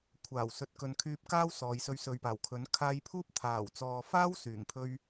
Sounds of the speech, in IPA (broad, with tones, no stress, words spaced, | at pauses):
kʷʰaː˨˩wsɵ˨˥t̚ kɵ˨nkʰyː˧p̚kaː˥w sɔː˨˧jsɵ˧ɥ sɵ˨ɥpaː˨˩wkʰɵ˨˥n kʰaː˧jpʰuː˥p̚ t̪ʰaː˨˩wt͡sɔː˨faː˥w syː˨˩ŋpʰɵ˥ɥ